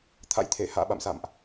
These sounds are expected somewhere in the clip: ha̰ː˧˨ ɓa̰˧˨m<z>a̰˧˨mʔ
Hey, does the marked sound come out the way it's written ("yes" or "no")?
no